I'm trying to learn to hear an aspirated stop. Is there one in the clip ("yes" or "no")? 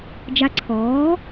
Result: yes